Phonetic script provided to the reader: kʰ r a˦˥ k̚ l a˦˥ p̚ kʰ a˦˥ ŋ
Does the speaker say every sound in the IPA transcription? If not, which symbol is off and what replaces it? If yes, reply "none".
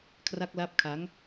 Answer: none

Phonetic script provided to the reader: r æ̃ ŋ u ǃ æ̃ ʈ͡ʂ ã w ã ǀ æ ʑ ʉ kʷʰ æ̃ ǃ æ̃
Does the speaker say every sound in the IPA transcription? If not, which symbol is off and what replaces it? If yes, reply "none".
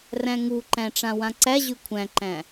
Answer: none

